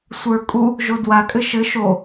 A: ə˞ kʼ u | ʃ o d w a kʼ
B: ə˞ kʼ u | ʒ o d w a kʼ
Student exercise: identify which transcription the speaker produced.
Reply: B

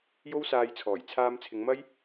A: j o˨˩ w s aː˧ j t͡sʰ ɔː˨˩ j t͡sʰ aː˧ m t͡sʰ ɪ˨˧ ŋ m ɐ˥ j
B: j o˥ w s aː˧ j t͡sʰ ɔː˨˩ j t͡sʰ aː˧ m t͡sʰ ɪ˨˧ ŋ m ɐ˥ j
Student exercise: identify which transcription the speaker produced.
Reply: B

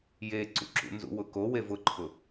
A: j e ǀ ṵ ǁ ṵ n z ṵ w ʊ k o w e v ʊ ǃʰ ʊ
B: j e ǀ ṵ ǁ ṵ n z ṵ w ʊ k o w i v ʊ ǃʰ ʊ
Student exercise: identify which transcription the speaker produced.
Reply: A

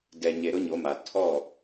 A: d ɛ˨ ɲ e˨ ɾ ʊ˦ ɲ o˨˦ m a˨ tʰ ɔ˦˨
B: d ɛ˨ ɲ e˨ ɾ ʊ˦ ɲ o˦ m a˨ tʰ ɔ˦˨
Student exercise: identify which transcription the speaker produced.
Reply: A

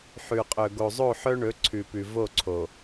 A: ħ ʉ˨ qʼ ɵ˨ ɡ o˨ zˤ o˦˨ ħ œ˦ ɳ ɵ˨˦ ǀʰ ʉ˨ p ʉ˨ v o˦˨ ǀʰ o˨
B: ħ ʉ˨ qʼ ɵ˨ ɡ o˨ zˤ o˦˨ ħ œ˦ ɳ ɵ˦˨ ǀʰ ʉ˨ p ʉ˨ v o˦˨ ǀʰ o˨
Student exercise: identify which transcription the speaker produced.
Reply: A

